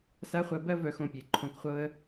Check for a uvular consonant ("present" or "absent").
present